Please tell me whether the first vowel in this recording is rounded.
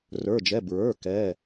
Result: no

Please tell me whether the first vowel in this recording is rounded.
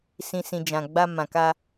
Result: no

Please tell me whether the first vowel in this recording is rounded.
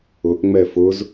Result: yes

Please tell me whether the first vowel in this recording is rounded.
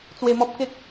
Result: no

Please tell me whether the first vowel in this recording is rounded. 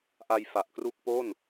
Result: no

